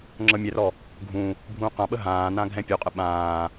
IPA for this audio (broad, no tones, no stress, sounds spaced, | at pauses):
ŋ͡ǁ ɤ mʲ ɛ r ɔ | ɡʱ ũ | bʱ ũː q ã ɓ ə ɦ ãː n ã ɡʱ ɛ̃ pʲ u qʼ ə ɓ ãː